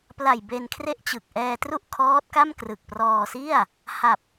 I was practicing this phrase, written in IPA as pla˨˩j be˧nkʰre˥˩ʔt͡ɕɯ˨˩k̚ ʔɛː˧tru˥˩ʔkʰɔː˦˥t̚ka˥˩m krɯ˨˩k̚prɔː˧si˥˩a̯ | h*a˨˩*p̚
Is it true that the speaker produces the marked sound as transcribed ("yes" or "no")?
yes